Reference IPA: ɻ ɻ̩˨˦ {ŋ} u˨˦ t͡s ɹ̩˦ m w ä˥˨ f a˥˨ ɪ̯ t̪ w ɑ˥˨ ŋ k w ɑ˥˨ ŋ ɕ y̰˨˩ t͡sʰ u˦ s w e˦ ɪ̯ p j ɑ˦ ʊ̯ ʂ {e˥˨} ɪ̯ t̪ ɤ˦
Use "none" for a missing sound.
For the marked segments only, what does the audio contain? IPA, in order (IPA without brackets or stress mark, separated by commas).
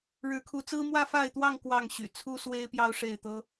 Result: kʰ, e˥˨